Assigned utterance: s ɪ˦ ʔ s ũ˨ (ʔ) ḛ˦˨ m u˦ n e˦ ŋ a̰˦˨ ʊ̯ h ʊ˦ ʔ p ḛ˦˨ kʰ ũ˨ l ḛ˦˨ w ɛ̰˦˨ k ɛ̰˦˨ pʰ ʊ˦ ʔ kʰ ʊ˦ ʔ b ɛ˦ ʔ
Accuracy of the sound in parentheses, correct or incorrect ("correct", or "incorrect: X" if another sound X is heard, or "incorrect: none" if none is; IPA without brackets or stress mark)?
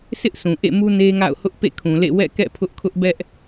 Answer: correct